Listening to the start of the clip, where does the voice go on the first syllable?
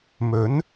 rising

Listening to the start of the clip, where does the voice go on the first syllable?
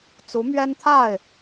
rising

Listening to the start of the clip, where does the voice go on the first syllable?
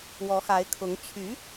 rising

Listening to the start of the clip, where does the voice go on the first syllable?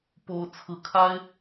high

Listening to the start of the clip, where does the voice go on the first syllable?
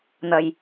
low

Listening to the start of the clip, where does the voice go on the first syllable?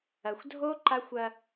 low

